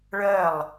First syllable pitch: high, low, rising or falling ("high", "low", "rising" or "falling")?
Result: falling